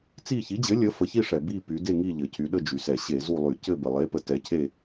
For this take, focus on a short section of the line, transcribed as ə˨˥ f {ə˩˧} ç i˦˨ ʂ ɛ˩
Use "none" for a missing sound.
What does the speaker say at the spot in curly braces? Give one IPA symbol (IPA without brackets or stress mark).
ə˩˧